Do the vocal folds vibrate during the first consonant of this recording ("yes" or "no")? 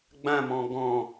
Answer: yes